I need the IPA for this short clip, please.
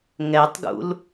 ŋ ɛ tˤ ɡ ṵ l

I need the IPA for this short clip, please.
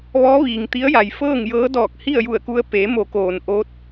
ʋ ɔː˧˥ ʋ iː˩ ŋ t̪ i˧˥ ə̯ j a˩ j f ɤː˥˨ ŋ j ɤː˧˥ d ɔː˧˩ k̚ h i˥˨ ə̯ j u˧˩ ə̯ k u˧ ə̯ p e˩˧ m o˩˧ k oː˩ n ʔ o˧˥ t̚

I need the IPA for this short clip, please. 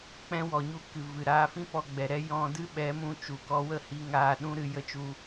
k͡p ɛ̃˦ w ɔ˨ ɲ u˦˨ k ɨ˨ v ɨ˨ ɾ aː˧ f ĩ˦ p ɔ˧ ɡ͡b ɛ˨ ɾ ɛ˦ j ɔ̃˧ d ɨ˦ ɓ ɛ˨˦ m ũ˧ t͡ʃ u˨ k ɔ˧ w ə˦˨ h i˧ ŋ aː˧ ɗ ũ˦ ɾ ɨ˧ j ə˧ t͡ʃ u˧

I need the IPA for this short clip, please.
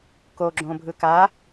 k o ɡ͡ǁ õ bʱ ɯ k a

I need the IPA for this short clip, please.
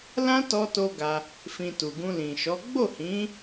l ã˦ t ɔ˧ t o˦ ɡ a˧ | f ĩ˧ t u˨ ɡ ũ˧ l ĩ˨ ʃ ɔ˨˦ ɡ͡b o˦˨ h ĩ˨˦

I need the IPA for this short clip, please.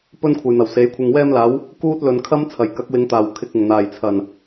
p ɵ˥ n kʷʰ ɐ˨ j n̪ ɐ˨˩ w s e˨˧ j kʷʰ ɪ˧ ŋ w ɛː˧ m l aː˨˧ w | k uː˥ t̚ l ɵ˨ n kʰ ɐ˥ m t͡sʰ ɐ˨˩ j k ɐ˨˥ k̚ w ɪ˨˧ ŋ t̪ aː˨˩ w kʰ ɪ˧ k̚ ɪ˨˩ ŋ n̪ aː˨˩ j t͡sʰ ɐ˨˩ n

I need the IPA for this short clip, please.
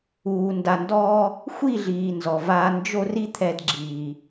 uː˨ n d a˨ n d ɔː˧ | xʷ i˦˨ ɮ iː˨ n z ɔ˨ v aː˧ n d͡ʒ o˦ r i˦ t̪ʰ ɛ˧ d ɡ͡ǁ iː˨

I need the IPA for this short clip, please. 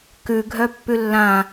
k ʉ ɡʱ œ pː ʉ lː ã

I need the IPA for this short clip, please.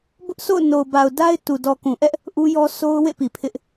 b ʊ˦ ʔ s o̰˦˨ ʊ̯ n o˨ ʊ̯ b a˨ ʊ̯ d a˦ ɪ̯ t u˨ d ɔ˨ k ũ˨ ʔ ɛ˦ ʔ | ʔ u˦ j ɔ˦ s o˦ ʊ̯ w ḛ˦˨ p i˨ pʰ ɪ˦ ʔ

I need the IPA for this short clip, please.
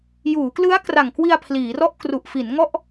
j uː˩˦ k l ɯ˦˥ a̯ k r a˨˩ ŋ k w i˧ a̯ pʰ l iː˩˦ r ɔ˥˩ ʔ k r u˨˩ ʔ f i˩˦ n ŋ ɔ˥˩ ʔ

